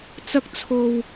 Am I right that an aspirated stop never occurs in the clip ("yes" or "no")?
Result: no